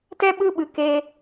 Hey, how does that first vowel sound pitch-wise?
high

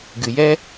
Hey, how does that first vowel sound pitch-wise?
low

